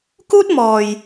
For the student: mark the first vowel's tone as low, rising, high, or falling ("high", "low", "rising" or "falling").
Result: high